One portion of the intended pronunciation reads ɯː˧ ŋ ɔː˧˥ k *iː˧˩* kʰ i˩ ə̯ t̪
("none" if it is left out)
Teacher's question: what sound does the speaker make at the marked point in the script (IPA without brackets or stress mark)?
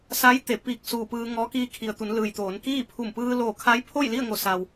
iː˧